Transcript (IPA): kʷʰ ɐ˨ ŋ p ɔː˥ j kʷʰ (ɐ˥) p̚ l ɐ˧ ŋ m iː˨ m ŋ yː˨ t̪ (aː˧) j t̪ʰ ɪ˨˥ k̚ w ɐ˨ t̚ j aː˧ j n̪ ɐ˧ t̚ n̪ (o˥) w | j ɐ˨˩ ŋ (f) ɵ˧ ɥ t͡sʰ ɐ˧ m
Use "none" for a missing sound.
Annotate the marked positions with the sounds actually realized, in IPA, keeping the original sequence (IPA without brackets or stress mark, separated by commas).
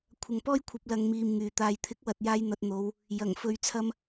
ɐ˧, aː˧, o˨˧, f